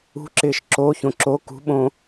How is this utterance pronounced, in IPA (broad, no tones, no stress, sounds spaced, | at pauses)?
ṳ ǁ ɪː ʃ ǁ o ç õ ǁ o k ṳ ɓ õ